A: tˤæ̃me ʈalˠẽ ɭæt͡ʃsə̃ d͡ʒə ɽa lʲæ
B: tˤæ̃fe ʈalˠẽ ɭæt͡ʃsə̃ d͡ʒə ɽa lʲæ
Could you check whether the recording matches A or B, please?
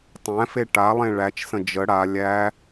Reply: B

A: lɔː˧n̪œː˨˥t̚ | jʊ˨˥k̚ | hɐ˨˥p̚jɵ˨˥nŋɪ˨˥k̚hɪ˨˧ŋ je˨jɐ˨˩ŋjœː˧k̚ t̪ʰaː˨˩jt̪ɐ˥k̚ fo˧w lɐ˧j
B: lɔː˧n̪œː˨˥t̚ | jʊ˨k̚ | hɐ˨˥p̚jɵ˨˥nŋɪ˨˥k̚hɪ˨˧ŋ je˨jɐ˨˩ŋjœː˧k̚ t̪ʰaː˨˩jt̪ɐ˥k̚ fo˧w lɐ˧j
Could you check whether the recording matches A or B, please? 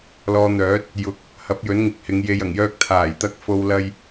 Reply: A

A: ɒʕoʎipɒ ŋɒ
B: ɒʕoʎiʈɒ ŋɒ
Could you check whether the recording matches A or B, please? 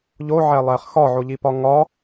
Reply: A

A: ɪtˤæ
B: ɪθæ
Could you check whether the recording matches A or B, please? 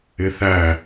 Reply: B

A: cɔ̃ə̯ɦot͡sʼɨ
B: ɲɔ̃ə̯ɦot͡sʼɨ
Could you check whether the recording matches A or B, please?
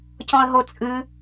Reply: A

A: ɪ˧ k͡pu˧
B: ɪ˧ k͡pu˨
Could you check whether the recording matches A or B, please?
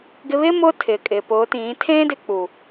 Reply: B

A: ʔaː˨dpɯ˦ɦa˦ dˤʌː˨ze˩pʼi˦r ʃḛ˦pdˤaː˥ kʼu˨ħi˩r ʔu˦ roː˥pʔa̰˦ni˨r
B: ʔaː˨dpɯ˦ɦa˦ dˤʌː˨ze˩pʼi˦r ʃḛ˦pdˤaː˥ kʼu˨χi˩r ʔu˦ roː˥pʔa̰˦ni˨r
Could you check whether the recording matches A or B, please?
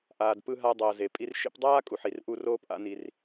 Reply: A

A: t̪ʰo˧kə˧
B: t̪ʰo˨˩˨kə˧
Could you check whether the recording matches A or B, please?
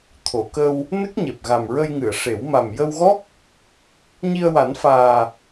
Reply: B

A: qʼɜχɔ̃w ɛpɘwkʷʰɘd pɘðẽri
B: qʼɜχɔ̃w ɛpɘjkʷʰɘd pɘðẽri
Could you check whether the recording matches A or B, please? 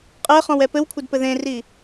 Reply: A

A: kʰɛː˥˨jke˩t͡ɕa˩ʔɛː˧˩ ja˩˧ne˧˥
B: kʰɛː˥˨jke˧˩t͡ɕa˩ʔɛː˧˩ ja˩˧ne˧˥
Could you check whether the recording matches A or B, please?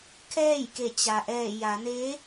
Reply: B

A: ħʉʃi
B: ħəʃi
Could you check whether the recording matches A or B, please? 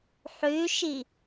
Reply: A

